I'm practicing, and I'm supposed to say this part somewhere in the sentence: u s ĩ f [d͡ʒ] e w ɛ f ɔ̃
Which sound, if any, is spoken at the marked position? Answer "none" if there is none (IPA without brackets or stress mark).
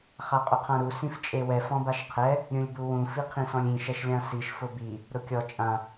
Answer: t͡ʃʼ